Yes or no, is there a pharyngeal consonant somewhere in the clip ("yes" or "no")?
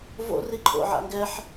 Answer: yes